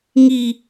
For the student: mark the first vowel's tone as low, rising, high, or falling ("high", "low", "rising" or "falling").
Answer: high